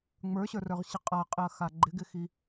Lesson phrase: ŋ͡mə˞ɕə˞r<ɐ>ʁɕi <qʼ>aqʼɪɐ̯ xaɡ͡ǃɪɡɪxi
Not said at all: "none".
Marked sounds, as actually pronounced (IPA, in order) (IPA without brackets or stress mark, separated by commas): ə˞, qʼ